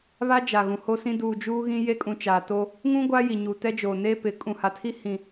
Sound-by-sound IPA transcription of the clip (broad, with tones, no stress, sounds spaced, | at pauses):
β a˦ d͡ʒ a˨ ɣ ũ˨ h o˦ s ĩ˦ d uː˨ d͡ʒ uː˦ ɣ ĩ˦ j e˦ kʼ ũ˨ t͡ʃ aː˨ t o˦ | ŋ ũ˦ ɡʷ a˦ j i˨ ɲ u˨ t ɛ˦ d͡ʒ oː˨ n eː˦ p ɪ˨˦ kʼ ũ˨ h a˨ tʰ i˦ h ĩ˨